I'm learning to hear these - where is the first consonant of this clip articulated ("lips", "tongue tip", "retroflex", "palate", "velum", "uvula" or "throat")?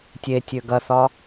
tongue tip